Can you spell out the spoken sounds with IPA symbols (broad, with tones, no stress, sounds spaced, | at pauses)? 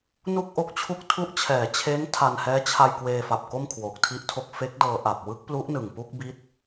n u˥˩ k̚ ʔ o˦˥ k̚ t͡ɕʰ u˥˩ k̚ tʰ u˦˥ ʔ t͡ɕʰ ɛː˩˦ t͡ɕʰ eː˦˥ ŋ tʰ a˧ n h ɛː˦˥ t͡ɕʰ a˧ j k w eː˧ f a˨˩ p̚ k o˥˩ m kʰ w oː˨˩ k̚ tʰ i˥˩ ʔ tʰ o˥˩ k̚ f e˦˥ k̚ d ɤː˧ ʔ a˨˩ p̚ w ɯ˦˥ k̚ p l u˦˥ ʔ n ɯ˨˩ ŋ p u˥˩ k̚ b i˥˩ t̚